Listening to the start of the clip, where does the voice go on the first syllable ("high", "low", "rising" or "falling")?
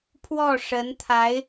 falling